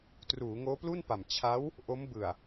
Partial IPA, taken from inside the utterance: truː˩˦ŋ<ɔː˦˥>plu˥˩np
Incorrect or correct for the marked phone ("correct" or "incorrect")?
incorrect